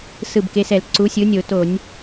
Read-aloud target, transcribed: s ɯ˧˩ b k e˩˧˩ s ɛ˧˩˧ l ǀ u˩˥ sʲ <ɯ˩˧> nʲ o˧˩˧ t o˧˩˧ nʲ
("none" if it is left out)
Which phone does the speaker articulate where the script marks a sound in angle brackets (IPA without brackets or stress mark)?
ɯ˩˥